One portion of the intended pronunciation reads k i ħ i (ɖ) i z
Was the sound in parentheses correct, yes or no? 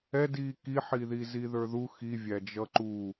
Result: no